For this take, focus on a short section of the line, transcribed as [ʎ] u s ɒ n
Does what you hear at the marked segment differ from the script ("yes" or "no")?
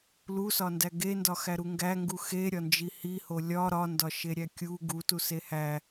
yes